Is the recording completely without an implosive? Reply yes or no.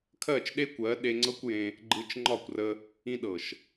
no